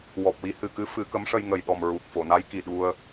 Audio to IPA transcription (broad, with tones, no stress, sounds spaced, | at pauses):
w ɔ˨˩ p̚ w i˧˥ h ɨ˨˩ k ɨ˧˥ f ɨ˨˩˦ k ə˧˥ m ʂ ə˧ j ŋ ə˨˩ j ɗ ɔ˨˩ m ɹ u˨˩ k̚ f o˨˩˨ n a˧˥ j k i˨˩ ɗ u˧ ə̯